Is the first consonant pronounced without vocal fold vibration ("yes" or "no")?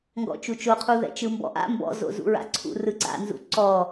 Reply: no